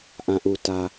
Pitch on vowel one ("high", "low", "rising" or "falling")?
low